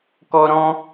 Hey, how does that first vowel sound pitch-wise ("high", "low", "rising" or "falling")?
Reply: high